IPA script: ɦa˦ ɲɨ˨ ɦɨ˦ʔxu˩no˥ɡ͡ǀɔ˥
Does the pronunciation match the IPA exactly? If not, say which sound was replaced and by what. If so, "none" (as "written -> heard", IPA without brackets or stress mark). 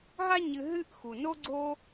ɔ˥ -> o˥